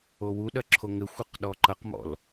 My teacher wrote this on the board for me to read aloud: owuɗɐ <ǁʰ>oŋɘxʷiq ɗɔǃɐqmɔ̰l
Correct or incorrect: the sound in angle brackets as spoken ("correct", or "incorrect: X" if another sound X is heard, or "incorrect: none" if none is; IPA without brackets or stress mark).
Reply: correct